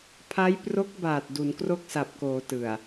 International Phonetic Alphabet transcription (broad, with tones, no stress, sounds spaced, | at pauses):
pʰ a˦˥ j p r o˦˥ k̚ b aː˨˩ t̚ d u˩˦ n k r o˥˩ k̚ s a˨˩ p̚ k oː˩˦ t ɯ˨˩ a̯